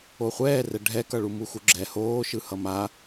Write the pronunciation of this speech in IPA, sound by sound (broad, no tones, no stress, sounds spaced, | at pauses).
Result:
o χʷ ɛː r ɛ ɖʱ ɛ k ʌ ɭ u m u x u ɡ͡ǁ ɛ h oː ʃ ɯ h ʌ m a